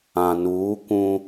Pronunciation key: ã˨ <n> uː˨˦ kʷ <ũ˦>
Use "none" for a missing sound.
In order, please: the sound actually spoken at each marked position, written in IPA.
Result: n, ũ˦

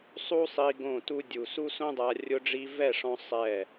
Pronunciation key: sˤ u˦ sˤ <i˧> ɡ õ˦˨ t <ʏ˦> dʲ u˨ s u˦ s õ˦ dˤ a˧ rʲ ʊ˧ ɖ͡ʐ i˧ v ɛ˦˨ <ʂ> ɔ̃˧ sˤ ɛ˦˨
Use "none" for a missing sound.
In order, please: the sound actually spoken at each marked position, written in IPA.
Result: i˧, u˦, ʂ

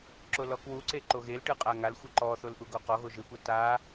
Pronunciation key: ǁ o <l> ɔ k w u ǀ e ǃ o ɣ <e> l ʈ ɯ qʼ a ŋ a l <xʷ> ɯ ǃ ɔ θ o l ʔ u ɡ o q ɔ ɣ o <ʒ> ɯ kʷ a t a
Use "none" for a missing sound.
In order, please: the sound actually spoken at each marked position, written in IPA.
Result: l, e, xʷ, ʒ

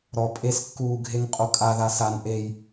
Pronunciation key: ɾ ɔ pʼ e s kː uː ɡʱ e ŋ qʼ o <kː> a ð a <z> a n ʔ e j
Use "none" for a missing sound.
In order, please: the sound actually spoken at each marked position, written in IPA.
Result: kʼ, s

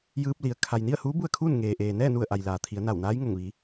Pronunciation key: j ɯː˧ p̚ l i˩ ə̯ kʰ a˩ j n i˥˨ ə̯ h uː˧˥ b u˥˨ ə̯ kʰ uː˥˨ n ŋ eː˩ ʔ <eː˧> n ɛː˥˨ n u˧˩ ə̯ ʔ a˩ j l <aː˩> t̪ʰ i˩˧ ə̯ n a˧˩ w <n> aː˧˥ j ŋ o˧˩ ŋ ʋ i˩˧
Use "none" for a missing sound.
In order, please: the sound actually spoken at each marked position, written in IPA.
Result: eː˩, aː˩, n

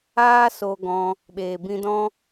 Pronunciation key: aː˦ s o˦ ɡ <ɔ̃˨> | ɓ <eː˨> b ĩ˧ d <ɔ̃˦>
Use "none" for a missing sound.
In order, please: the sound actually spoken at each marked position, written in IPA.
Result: ɔ̃˧, eː˨, ɔ̃˦

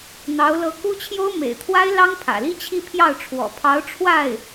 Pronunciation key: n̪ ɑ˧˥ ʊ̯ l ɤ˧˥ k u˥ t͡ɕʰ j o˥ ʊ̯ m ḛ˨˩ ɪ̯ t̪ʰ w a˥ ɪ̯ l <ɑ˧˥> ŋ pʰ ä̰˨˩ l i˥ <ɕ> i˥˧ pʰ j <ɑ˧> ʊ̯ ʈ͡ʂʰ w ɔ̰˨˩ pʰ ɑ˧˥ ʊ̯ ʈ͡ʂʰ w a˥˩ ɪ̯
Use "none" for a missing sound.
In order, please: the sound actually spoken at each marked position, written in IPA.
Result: ɑ˥, t͡ɕʰ, ɑ˥˩

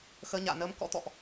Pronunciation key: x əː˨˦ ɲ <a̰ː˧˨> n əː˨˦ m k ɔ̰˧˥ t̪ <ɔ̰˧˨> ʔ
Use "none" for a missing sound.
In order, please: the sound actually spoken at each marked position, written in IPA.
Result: a̰ː˧˨, ɔ̰˧˨

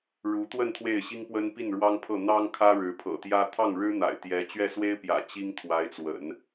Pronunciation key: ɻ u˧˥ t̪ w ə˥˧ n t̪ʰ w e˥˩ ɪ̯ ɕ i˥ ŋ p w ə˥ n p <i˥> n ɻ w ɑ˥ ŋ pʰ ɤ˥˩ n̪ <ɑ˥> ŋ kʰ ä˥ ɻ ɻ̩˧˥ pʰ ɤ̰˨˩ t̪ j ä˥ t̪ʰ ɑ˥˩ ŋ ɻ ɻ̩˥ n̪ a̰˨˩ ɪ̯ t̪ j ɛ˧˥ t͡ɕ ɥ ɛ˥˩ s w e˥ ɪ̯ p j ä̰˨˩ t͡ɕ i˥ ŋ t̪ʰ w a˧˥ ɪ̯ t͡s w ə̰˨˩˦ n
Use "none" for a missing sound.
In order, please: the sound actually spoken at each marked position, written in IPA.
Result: i˥˩, ɑ˥

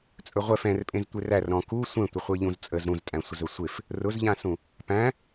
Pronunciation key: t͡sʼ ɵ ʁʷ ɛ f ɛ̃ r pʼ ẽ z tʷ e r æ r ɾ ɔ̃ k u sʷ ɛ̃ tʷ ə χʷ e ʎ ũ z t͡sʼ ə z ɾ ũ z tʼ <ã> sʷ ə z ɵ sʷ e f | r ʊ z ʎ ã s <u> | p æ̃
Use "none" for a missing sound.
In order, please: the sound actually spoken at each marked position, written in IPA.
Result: æ̃, ũ

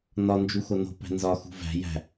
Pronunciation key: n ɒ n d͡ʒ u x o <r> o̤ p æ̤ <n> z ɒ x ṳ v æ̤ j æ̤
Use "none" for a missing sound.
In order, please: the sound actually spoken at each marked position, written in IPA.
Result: n, n

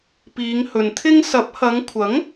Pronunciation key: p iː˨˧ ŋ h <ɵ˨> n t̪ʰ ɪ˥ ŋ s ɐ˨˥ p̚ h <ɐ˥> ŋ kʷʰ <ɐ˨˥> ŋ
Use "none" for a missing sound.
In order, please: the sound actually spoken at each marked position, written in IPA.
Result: ɵ˨, ɐ˨˧, ɐ˨˥

